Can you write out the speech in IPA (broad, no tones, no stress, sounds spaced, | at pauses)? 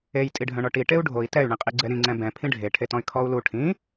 e j tʼ i ɖʱ œ̃ ɳ ɔ ʈ i ʈ e u̯ ɖʱ o i̯ t ɛ y̯ ɳ ĩ qʼ i ɡ͡ǀ ɛ ɾ ĩ ŋ͡ǀ ɛ̃ b ɛ̃ pʰ ĩ ɖʱ e ʈʰ e t ɔ̃ y̯ kʰ ɔ u̯ l u ʈʰ ĩ